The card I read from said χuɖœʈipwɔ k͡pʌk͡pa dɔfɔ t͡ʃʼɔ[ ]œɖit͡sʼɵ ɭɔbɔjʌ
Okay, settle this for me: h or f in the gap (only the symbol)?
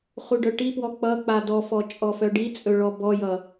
f